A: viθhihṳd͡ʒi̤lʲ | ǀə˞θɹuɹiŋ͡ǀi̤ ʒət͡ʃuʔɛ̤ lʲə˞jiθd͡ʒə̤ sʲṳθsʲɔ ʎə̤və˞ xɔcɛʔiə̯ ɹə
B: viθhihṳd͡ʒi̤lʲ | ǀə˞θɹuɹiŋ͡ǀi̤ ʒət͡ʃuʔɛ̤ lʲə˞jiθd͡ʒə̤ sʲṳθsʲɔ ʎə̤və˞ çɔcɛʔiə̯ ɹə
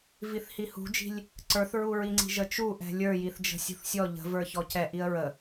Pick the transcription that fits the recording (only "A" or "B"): B